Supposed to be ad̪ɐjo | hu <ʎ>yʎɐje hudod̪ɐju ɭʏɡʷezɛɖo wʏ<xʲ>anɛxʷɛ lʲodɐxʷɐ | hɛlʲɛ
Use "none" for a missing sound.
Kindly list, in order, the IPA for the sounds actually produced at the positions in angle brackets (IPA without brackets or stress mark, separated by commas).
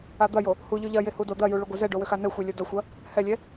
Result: ʎ, x